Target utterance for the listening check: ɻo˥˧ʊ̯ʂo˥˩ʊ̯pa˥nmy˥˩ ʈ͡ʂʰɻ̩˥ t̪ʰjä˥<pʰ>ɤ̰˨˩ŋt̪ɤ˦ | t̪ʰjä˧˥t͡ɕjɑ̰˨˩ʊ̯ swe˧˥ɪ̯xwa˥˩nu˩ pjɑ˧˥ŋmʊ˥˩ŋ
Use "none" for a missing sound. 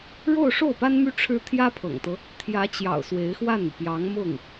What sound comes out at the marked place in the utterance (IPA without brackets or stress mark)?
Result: pʰ